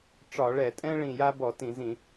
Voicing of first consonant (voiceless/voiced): voiceless